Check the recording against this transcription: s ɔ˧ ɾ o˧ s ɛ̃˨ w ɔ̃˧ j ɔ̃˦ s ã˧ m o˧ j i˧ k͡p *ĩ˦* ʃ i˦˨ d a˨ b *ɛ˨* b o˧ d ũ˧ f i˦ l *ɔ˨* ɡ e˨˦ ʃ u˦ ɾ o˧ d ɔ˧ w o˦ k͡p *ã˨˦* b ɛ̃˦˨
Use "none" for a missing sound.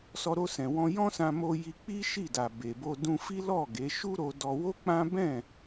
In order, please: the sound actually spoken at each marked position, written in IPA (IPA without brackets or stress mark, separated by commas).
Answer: i˦, e˨, ɔ˦˨, ã˦